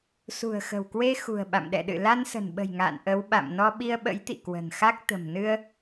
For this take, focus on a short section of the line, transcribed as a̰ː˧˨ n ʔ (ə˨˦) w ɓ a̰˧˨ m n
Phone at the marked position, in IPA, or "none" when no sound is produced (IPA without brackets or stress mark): ə˨˦